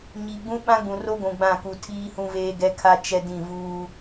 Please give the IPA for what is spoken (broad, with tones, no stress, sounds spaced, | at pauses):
ɲ i˨ ɡ͡b ũ˦ ɓ ã˦ ɡ͡b ũ˨ r o˦ ɡʷ ũ˨ ɡ͡b ã˦˨ k u˨ tʰ iː˦ h ũ˦ v eː˦ ɡ ɛ˦ kʰ a˦ t͡ʃ ɛ˦ d ĩ˦˨ v uː˦